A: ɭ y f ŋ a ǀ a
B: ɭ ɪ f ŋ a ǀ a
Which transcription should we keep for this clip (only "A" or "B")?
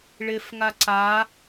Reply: B